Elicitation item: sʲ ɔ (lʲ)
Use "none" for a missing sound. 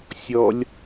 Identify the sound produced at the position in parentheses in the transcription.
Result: lʲ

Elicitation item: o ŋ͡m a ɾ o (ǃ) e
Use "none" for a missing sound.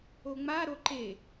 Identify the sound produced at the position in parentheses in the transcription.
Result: ǃ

